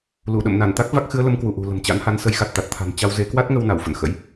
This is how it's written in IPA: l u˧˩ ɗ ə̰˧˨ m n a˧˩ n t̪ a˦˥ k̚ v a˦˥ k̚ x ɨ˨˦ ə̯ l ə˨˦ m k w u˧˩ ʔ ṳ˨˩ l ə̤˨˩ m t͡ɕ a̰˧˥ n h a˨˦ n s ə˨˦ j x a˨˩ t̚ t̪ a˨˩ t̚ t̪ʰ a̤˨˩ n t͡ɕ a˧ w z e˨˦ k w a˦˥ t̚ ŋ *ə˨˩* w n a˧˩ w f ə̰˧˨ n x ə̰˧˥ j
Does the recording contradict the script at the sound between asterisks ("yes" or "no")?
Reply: yes